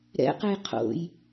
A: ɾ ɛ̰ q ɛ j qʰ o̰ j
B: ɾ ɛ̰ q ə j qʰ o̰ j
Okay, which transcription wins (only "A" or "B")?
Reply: A